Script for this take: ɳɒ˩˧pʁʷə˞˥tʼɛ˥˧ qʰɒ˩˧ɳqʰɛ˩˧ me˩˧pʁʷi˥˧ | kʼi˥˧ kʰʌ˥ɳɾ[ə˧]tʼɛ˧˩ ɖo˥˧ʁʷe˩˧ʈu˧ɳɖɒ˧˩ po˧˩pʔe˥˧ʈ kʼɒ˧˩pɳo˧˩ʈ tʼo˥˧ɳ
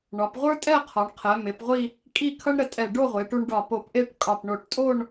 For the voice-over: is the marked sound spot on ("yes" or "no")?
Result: yes